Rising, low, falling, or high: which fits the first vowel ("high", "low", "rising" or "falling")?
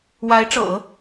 rising